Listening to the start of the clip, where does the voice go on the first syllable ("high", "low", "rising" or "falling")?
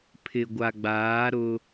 low